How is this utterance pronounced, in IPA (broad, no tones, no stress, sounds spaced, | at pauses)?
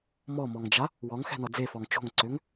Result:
m ɔ m ɔ ŋ d͡ʒ a | w ɔ ŋ x ɛ̤ n ɔ d͡z e f ɔ ŋ t͡ʃ o̤ ŋ ǀ ø ŋ